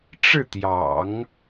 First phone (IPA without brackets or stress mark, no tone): ʈ͡ʂ